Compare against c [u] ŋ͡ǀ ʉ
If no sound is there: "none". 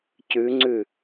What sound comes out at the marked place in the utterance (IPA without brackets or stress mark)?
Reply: ʉ